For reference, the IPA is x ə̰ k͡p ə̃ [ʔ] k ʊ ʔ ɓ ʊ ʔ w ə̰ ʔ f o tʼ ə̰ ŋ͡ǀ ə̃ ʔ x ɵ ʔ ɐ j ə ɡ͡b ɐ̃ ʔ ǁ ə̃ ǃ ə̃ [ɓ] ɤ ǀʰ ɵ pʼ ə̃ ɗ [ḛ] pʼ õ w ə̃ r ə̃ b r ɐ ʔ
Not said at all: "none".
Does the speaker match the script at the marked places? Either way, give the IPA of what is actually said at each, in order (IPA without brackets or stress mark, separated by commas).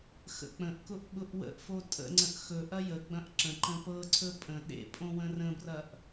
ʔ, p, ḛ